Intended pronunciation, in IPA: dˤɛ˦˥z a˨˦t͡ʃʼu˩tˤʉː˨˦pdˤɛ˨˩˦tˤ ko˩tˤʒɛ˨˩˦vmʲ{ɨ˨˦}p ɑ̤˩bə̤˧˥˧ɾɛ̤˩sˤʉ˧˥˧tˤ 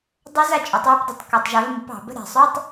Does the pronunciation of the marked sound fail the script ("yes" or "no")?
yes